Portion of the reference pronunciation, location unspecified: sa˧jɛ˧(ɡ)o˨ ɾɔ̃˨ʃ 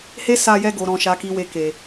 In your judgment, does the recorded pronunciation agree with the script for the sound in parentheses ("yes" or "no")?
yes